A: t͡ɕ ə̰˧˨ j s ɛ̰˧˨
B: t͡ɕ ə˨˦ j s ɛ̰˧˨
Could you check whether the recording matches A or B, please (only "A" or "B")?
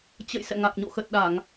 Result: A